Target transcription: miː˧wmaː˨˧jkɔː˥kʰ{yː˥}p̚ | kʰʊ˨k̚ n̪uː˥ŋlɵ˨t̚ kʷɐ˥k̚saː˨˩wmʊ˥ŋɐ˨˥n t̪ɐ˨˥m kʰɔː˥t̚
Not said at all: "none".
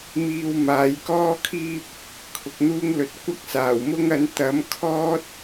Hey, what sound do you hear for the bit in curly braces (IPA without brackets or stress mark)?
iː˥